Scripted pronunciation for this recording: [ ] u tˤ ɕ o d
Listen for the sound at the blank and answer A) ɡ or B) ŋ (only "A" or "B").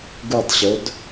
A